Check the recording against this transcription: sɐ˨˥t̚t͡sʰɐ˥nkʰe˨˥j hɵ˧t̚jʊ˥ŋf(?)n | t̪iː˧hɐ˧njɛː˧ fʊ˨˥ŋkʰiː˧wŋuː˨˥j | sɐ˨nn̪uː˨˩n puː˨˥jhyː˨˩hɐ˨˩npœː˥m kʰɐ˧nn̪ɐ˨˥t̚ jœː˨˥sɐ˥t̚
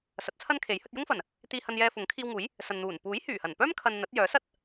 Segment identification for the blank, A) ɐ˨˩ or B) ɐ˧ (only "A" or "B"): A